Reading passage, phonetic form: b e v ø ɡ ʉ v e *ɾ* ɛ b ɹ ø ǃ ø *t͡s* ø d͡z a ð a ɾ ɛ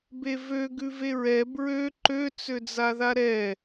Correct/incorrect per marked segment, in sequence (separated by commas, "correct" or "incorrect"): incorrect, correct